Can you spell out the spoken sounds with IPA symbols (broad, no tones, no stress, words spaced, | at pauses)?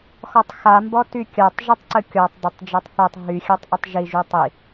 xɔtˤxa mbɔtykʲatˤ ʒitˤǀəkʲɔtˤ dˤətˤ d͡ʒatˤθatˤ ɦy xʲatˤʔətˤʒi ʒytˤi